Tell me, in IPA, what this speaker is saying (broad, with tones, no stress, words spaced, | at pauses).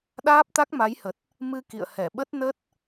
ɗaː˦˥p̚t̪a˦˥k̚ma˨˦jhə˨˩t̚ | mɨ˧ kḭ˧˨ə̯hɛ˧˩ ɓə˦˥t̚nə˦˥t̚